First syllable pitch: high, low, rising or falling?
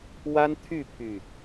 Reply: high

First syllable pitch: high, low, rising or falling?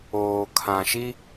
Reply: low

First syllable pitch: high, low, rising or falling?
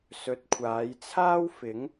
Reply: low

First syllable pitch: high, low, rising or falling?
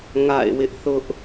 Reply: falling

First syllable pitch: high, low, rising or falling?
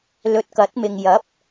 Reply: low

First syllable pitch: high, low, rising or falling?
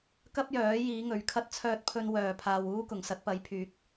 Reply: high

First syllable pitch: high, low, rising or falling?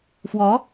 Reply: rising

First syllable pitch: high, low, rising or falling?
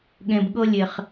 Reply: low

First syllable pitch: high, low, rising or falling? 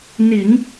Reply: low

